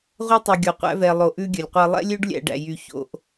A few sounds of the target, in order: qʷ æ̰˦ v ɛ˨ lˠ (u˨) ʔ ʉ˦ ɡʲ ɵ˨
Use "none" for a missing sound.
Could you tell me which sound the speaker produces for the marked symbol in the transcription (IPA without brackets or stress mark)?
o˨